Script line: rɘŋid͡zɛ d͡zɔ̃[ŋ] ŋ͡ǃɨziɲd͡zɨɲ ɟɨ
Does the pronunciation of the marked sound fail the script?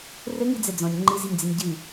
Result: yes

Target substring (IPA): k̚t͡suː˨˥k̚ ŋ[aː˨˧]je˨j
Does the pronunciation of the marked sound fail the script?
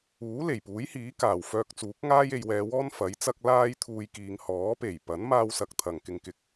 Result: yes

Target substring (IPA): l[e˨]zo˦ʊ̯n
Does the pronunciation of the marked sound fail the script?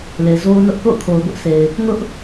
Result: no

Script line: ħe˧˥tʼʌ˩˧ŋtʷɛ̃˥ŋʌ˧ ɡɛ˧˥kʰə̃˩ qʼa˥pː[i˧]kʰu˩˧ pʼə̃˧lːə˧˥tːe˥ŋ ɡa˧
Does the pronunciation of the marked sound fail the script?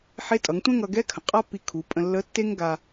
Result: no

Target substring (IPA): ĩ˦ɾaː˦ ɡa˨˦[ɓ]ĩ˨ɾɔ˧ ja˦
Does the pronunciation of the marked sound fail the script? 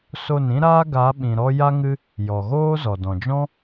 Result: no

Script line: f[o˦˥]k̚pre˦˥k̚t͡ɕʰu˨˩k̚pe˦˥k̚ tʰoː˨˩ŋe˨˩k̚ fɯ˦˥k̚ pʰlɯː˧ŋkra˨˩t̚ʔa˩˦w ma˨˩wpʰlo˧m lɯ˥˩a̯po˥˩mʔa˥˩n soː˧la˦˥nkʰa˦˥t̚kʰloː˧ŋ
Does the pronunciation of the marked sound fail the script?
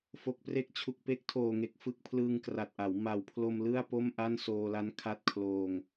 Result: yes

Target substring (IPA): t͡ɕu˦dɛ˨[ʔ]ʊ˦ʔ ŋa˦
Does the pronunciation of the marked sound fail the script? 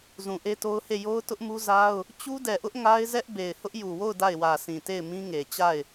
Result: no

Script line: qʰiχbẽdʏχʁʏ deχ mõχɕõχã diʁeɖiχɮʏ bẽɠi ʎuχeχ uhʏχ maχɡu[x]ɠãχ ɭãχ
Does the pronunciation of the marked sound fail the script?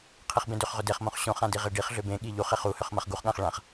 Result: yes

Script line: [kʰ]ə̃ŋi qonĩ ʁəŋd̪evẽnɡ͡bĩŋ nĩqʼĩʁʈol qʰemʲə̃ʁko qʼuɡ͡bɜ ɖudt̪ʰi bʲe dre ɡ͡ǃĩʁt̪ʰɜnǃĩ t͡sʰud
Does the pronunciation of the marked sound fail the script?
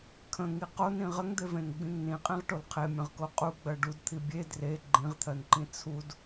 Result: no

